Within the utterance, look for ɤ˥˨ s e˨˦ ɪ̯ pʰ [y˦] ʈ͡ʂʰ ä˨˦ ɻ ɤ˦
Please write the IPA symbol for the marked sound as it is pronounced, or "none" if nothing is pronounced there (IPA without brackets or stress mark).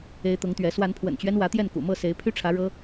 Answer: y˦